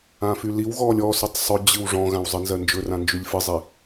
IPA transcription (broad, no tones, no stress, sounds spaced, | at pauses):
ã f y l i w ɣ ɔː lʲ ɔ s y tˤ sˤ ɵ d͡ʑ ɨ w ʐ ɔ̃ ɣ ã w zˤ ɨ n z ɜ n d͡ʒ ɵ r ã n d͡ʒ y lʲ f ɨ zˤ i